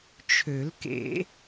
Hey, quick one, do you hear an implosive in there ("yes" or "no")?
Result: no